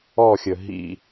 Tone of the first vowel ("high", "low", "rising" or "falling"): falling